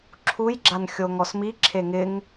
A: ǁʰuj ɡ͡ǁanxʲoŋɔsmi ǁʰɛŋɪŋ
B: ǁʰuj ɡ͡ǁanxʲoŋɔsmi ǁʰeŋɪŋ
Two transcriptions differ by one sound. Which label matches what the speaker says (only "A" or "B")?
B